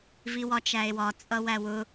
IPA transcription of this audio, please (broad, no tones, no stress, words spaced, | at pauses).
viwɒt͡ʃæe̯wɒ t͡sʼʌwæwʊ